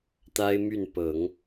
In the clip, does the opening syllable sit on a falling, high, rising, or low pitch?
high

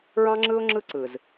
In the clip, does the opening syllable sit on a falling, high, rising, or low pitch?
high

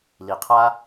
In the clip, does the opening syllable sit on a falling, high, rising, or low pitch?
low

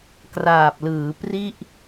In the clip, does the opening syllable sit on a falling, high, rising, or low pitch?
low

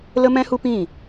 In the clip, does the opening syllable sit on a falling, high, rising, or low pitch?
high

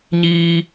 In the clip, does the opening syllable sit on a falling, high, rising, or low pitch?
low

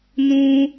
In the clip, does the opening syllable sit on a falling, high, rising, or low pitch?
high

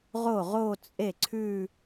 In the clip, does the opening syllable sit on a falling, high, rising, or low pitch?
falling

